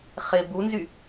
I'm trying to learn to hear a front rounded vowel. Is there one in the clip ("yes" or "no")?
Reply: yes